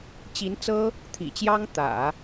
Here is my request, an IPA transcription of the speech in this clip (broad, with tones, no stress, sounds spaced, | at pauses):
t͡ɕ i˧˥ n t͡s ɤ˥ | t̪ʰ ḭ˨˩ t͡ɕ j ɑ˥ ŋ t̪ ä̰˨˩˦